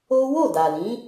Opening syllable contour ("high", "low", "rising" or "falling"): high